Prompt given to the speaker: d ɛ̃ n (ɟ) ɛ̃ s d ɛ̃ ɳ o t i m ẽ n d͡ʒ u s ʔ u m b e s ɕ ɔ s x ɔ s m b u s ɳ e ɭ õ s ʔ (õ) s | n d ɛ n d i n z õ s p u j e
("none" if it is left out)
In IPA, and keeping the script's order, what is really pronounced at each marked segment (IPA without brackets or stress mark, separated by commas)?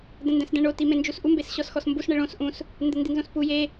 d, ũ